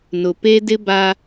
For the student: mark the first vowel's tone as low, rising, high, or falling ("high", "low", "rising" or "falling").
low